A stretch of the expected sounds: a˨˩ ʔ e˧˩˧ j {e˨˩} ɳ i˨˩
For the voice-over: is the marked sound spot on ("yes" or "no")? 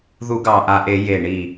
yes